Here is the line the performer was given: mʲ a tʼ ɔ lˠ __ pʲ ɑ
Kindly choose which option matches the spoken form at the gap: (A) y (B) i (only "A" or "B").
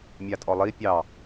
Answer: B